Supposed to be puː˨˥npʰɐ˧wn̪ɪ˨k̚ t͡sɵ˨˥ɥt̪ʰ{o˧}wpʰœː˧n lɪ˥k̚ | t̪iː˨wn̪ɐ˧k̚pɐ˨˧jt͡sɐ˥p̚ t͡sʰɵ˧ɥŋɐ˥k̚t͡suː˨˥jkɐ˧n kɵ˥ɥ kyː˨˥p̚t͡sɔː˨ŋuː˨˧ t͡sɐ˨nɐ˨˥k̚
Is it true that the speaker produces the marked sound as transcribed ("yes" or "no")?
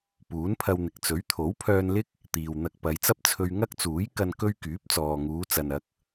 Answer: no